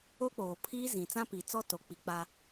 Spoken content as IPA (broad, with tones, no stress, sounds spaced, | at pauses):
o˦ k͡p oː˨ pʰ iː˦ z ĩ˨ t͡s ã˦ p i˨ t͡s ɔ˦ t o˨ k͡p i˨ k͡p a˦